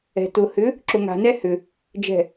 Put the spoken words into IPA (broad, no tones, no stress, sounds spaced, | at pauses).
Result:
ɛ̤ t ʊ h ʏ | ǁ ʊ ŋ a̤ n ɛ h ʏ | d͡ʒ ɛ̤